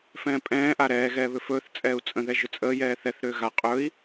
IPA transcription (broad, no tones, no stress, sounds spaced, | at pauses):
f ɛ̃ː pʼ ɛ̃ː ʔ a ɾ ɛː ɣ ɛː β ʏ f ɵː θ t͡sʼ ɛː u̯ t͡sʼ ə̃ ð ɛ ʒ ʏ t͡sʼ əː j ɛː θ ɛ θ ɾ ʏː ɣ a qʼ ɵ i̯